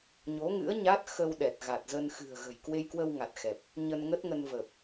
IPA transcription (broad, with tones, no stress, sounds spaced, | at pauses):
ɲ o˨˦ ŋ ɨ̰˧˥ ə̯ ɲ a˦˥ t̚ x ə˧ w ɗ ɛ˨˩ t̚ ɣ a˨˩ t̚ z ə˧ n x ɨ̤˨˩ ə̯ ɣ ə̤˨˩ j k w e˧ j k w ə˧ w ŋ a˨˩ t̚ x ɛ˨˩ p̚ | ɲ ə˧ n ŋ ə˦˥ t̚ ŋ ə˧ n v ə˨˩ p̚